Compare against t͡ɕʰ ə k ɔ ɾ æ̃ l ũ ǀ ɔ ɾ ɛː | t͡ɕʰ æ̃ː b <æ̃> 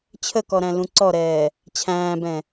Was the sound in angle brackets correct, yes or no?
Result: no